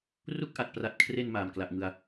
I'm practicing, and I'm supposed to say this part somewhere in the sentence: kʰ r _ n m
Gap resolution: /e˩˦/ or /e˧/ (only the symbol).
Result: e˧